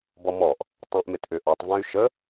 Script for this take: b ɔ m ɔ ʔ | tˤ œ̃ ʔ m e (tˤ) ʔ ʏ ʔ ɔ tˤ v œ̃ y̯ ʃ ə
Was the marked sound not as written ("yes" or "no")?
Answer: yes